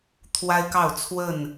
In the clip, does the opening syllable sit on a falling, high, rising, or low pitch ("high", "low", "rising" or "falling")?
high